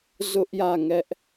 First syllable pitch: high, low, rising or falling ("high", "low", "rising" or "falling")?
high